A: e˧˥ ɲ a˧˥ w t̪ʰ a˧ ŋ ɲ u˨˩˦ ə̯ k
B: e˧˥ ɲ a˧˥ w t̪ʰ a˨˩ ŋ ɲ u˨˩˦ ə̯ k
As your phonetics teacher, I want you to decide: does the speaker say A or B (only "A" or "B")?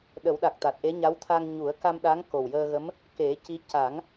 A